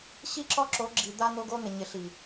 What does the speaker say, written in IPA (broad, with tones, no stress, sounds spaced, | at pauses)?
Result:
ɕ i˦ ǁ ɔ˦ ǁ o˨˦ ɡ͡ǁ i˨ d̪ a˦ n̪ o˦ ɡ o˦ n̪ ɪ˨ ɲ ɪ˨ ɬ i˨